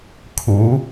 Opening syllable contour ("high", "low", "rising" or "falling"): rising